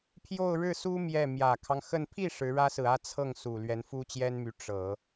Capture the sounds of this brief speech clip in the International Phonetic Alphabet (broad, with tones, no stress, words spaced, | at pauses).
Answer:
pʰjo˥˧ʊ̯ɻɻ̩˥˩ su˥ mjɛ˥˩ mjä˨˩kʰɑ˦ŋxə˥˧n pʰi˥˩ ʂɻ̩˧˥ɻä˥sɹ̩˨ä˥˧ t͡sʰɤ˥˩ŋsu˨˩ lɥɛ˧˥nfu˥t͡ɕjɛ˥nmy˧˥ ʈ͡ʂɤ˨˩˦